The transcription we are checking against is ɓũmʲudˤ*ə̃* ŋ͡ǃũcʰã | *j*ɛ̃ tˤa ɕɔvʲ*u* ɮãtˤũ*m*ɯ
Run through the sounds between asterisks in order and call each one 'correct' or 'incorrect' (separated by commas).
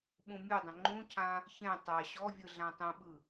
correct, incorrect, incorrect, incorrect